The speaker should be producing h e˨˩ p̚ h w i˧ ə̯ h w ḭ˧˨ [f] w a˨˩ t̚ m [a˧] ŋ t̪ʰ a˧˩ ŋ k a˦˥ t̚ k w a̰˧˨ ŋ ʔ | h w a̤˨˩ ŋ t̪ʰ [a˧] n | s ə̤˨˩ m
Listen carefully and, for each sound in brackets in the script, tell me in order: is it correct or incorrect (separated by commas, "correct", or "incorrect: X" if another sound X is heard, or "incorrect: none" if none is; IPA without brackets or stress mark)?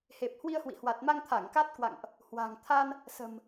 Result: incorrect: h, correct, correct